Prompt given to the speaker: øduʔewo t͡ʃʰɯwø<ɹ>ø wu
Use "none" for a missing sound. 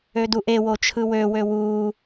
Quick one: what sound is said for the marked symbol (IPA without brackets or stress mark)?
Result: w